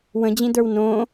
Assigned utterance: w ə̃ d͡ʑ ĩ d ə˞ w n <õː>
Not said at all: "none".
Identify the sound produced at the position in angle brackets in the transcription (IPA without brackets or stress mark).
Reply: õː